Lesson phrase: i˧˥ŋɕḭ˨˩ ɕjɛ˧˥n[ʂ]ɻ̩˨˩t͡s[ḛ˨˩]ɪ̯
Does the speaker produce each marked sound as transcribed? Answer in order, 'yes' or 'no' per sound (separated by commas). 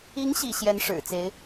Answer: yes, no